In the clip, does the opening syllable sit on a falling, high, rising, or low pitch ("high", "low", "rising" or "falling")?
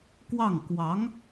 falling